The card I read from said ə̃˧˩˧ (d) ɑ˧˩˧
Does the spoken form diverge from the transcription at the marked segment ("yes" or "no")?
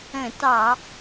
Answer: yes